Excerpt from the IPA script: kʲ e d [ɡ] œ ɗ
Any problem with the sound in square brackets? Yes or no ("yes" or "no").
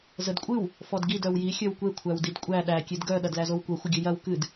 no